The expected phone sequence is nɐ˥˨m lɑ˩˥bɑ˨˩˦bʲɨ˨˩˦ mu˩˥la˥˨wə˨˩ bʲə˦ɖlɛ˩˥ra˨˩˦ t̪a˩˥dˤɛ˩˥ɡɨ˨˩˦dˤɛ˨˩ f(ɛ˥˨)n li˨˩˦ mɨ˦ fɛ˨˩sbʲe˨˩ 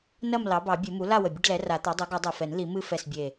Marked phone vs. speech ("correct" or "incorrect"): incorrect